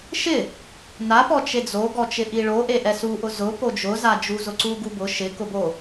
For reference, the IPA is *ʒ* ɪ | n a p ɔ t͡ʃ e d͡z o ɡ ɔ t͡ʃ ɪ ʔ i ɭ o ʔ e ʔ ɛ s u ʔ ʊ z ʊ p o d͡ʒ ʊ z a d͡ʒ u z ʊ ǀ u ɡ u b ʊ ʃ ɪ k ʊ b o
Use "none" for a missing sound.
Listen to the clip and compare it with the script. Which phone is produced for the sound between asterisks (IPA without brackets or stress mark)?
ʃ